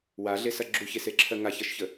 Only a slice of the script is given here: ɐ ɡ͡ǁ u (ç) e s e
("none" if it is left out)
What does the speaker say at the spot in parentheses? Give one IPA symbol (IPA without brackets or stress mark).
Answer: ç